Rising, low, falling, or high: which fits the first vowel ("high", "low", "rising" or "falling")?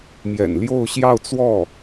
low